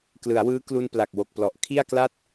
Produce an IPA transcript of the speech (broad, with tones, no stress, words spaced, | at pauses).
klɯ˩˦a̯wɯː˦˥ klu˧npla˨˩k̚ wo˨˩k̚plɔ˨˩ʔ kʰi˥˩a̯kla˥˩t̚